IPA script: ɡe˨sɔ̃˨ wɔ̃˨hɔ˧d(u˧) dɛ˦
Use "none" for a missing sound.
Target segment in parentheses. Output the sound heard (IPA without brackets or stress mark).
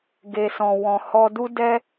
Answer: u˦